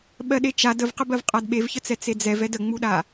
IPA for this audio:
ɓɜɗet͡ʃad əvqəbɜv qʼadɓevçət͡sɛ t͡sed͡zɛvɛd əŋ͡muɗa

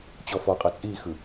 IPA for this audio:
t͡ɕɔfɔqʼɤ t͡sʼixɯ

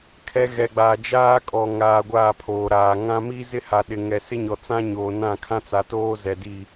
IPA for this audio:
kʰɛ˦ ɣɛ˨ɡ͡baː˨ d͡ʒaː˦ kʼɔ˨ ŋaː˨ ɡʷaː˦˨pʰoː˨ɾaː˨ ŋã˦ mi˦zɪ˦ha˨ ɗɪ˨ŋɛ˨ sɪ˦ɲɔ˨t͡sã˦ ɲoː˨nã˦˨kʰã˦t͡sa˨ toː˦ zɛ˨ di˦˨

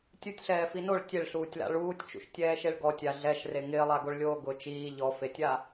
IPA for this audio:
tʲutʲɬɛːfi noɭ tʲeɭɬuːtʲla̰ ɭuːtʲt͡ʃṵʃtʲɛːʃeɭ ɡɔtʲa ɮɛʃre ŋɪːlˠaɡoɭlʲoː ɡʊ t͡ʃiː ʎɔfetʲa

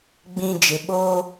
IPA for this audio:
ɡ͡bĩ˨ d͡ʒɪ˨ɓoː˦

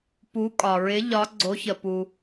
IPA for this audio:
pu˨˥kʼɒ˩ɹɪ˨˥ ʎɒ˨˥ ɡ͡ǀo˨˥çə˩pu˩

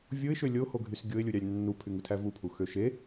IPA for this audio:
vʲoɪ̯ʃø lʲohoɡʱys ɡʲoɪ̯lʲuɾʲɑlʲ nːupʰyŋutʰæ vupʰuxø ʃe

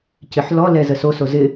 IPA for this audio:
cɪħlɔlɛ zəsoso zɪ

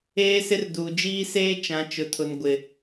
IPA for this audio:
eː˦sɪ˦r duː˨d͡ʒiː˦seː˦ t͡ʃã˨˦t͡ʃʊ˨tʰʊ˨n ɡʷɪ˨

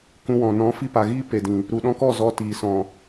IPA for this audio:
kũ˧wɔ̃˨ nɔ̃˨˦fi˧pa˨ ɣiː˦pe˨dĩ˨ | ɾu˨ɗɔ̃˧kɔ˦˨ zɔ˧ tiː˨sɔ̃˨

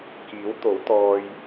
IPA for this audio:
kiː˨˥wt̪o˨˥wt̪ɔː˧j

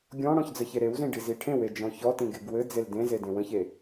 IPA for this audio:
ɡʲɔ̃ɽɔ̃ç d͡zəçeɾewzĩ ɖiziʈʰẽwe d͡ʒɔ̃çɔtĩ ɡeɡwɘd͡zel dẽze dẽwə̃çe

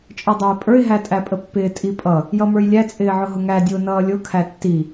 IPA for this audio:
t͡ʃʼə˞dˤə˞ɪ̯pʼə˞ɪ̯ ɦætʼæpʼəpːɪː tʼipʼʌ | jʌmə˞jlʲæ t͡sʼɪːʕʊɦʊŋæ dʲʊːnʌːlʲʊ kʰætːi

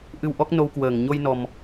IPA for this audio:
ʔɨ˧w ʔɔ˦˥k̚ no˧wkwəː˧˩ŋɲo˧jnɔ˨˩m

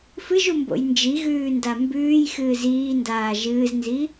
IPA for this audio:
fɨʒumbo̰j nd͡ʒiɣʉːnda mbʉːjxɨːz iːndaː ʒɨːznzi

